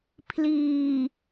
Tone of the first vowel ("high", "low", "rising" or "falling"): low